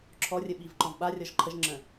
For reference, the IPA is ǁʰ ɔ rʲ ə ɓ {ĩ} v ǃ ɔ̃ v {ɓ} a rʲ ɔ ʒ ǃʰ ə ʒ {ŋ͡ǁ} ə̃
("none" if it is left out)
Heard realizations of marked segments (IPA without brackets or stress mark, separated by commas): i, ɓ, ŋ͡ǁ